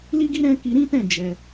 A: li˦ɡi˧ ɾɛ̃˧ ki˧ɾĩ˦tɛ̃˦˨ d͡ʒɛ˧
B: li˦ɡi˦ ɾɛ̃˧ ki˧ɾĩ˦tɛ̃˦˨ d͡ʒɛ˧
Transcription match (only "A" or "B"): B